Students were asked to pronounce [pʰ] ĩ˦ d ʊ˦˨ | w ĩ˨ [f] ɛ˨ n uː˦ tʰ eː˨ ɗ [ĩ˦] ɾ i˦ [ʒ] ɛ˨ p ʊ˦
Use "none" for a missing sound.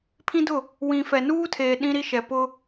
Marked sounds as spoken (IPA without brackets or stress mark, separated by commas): pʰ, f, ĩ˦, ʃ